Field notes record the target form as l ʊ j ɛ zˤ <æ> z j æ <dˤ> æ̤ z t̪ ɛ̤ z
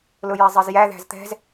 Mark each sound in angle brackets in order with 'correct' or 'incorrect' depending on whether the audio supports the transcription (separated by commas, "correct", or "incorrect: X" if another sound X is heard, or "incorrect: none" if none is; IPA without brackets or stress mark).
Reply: incorrect: ɜ, incorrect: ð